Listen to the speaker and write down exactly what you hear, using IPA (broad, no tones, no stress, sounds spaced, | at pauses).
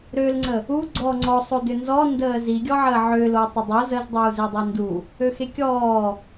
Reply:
ɾ ø l ŋ͡ǀ ə | u ɡ͡ǀ ɔ ŋ͡ǀ ɔ sˤ o d ʏ n z ɔ n d əː z i ɡʲ ɔ ʕ əː ʕ ʏ l o tˤ ʏ dˤ o z ə z dˤ uː z e dˤ i n d u | ø x e kʲ ɔː